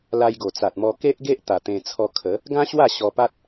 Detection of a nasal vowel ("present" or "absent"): present